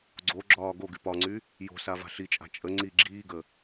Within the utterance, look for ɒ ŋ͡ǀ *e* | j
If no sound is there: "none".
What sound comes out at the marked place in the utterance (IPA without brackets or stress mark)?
y